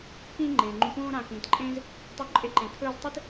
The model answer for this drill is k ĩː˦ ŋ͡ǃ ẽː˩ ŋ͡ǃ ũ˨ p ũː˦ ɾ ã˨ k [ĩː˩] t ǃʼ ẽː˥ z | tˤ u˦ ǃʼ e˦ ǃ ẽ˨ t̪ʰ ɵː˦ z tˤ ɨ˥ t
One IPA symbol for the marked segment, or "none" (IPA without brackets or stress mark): ĩː˩